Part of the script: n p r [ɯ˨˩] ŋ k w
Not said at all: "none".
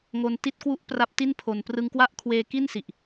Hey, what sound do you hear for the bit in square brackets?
ɯ˧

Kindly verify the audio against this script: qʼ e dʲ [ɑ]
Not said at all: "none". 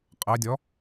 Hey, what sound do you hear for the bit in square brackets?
ɔ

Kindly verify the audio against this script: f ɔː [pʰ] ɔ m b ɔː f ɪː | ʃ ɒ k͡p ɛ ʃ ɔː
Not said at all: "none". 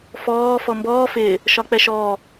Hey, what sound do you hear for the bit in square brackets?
f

